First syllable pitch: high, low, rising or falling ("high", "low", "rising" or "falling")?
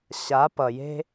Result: rising